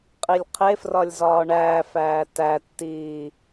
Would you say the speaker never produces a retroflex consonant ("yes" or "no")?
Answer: no